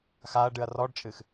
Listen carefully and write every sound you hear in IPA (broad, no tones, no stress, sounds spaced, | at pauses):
x a ɐ̯ ɖ ɨ ɐ̯ r ɔ ɖ t͡ʃʼ ɨ x